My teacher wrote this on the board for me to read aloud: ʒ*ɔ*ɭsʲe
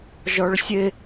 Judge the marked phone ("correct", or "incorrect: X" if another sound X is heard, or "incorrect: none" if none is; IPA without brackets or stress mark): correct